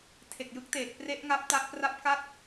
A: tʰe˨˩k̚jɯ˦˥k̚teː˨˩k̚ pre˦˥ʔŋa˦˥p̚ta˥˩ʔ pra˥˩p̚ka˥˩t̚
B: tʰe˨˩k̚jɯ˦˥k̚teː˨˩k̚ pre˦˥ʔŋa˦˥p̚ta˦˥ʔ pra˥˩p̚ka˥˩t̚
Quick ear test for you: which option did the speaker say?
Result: B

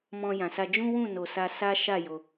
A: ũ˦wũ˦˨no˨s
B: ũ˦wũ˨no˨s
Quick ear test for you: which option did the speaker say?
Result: A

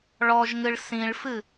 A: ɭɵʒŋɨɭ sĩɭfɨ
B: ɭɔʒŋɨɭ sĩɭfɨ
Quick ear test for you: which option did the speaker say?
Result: B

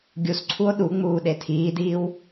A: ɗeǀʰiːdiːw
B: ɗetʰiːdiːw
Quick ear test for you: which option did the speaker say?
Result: B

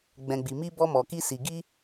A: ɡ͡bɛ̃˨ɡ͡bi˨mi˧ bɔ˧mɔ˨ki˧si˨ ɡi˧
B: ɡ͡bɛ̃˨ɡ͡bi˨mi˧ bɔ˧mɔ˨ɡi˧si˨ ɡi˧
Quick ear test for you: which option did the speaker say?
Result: A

